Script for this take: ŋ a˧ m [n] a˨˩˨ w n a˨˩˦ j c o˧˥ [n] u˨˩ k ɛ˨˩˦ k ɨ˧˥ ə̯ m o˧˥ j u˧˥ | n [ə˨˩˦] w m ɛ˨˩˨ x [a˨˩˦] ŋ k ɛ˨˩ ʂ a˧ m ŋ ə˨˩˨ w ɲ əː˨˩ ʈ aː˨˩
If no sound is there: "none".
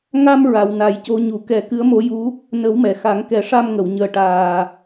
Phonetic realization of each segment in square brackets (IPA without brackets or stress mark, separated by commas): ɹ, ɲ, ə˨˩˦, a˨˩˦